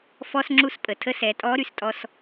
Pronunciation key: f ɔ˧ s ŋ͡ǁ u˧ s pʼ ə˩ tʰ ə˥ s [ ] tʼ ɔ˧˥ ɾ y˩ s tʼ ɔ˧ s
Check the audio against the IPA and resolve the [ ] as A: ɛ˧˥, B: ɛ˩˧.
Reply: B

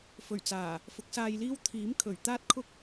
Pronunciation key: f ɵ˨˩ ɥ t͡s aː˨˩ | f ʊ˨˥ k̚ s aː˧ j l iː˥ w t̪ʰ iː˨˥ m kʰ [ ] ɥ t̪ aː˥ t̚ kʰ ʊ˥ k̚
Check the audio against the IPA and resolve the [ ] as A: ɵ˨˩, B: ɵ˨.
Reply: A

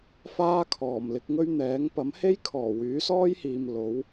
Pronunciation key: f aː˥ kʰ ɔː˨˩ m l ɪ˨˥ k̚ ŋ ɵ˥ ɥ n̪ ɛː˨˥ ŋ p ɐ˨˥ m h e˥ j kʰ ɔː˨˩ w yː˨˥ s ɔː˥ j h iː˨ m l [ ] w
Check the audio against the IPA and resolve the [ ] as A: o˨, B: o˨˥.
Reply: B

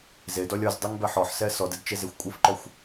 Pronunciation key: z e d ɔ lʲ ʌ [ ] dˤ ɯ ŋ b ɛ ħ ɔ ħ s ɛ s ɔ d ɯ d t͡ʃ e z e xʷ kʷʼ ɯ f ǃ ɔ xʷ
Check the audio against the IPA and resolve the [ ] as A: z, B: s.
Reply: A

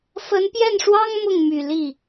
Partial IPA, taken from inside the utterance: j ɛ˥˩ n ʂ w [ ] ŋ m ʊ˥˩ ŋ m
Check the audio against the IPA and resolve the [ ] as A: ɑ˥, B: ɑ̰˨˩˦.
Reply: A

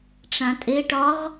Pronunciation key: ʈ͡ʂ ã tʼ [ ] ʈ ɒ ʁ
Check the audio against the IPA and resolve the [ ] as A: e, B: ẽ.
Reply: A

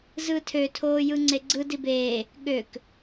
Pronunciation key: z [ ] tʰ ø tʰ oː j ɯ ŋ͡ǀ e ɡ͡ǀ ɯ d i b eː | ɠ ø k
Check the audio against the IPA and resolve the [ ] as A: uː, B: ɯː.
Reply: B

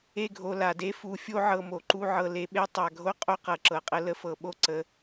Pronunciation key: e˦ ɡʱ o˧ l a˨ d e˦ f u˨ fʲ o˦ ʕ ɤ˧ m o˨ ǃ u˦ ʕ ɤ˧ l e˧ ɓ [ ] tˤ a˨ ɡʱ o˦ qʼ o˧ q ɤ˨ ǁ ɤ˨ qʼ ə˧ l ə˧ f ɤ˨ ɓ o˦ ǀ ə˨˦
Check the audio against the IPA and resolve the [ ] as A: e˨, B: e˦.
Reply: B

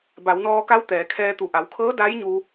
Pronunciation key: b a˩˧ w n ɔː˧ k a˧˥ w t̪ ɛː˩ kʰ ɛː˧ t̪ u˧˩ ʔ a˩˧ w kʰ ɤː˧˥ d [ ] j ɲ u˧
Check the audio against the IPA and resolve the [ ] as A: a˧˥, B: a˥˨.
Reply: A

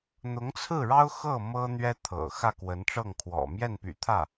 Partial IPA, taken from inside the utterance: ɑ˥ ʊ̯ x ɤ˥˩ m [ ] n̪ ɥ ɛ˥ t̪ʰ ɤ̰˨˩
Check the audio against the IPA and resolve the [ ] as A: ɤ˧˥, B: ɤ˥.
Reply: B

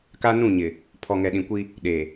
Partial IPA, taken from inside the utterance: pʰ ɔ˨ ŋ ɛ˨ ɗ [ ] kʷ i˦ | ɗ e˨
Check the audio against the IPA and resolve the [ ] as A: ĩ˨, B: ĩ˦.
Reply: A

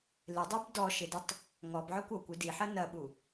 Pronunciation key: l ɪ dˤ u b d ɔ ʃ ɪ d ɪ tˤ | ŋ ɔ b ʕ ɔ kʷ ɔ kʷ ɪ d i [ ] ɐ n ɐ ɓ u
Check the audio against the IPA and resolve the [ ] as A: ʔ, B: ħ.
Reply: B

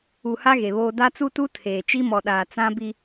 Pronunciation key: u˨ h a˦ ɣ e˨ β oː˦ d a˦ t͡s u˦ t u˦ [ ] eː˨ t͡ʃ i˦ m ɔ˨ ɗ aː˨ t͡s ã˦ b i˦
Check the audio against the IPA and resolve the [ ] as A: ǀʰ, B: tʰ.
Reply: B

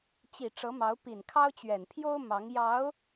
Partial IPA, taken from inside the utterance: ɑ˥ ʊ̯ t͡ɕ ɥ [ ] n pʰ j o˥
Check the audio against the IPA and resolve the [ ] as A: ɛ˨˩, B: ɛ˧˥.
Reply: A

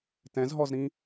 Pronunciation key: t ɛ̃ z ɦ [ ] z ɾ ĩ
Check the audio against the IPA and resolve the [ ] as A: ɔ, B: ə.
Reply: A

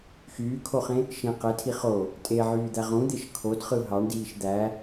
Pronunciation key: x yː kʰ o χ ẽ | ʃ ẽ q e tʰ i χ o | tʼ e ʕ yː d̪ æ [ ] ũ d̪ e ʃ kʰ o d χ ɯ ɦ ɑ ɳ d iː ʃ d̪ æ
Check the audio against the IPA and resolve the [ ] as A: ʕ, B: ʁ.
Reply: B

